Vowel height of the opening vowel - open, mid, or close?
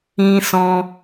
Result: close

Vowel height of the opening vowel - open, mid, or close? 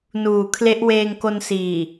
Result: close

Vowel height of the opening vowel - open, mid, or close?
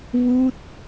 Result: close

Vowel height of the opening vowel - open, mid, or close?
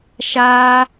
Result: open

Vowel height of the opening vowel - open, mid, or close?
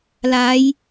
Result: open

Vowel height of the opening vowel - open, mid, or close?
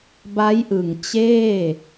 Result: open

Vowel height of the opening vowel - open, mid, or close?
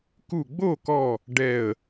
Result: close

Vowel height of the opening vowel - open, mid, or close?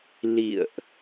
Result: close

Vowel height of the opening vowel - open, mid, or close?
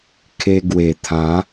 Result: mid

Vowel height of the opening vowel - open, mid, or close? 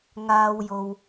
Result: open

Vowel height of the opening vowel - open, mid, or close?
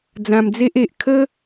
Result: open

